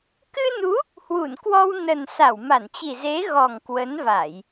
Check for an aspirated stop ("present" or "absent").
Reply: absent